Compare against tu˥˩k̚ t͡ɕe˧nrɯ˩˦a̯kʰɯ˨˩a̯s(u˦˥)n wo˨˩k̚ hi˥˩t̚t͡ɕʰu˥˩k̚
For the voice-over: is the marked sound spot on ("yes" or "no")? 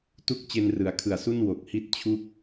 no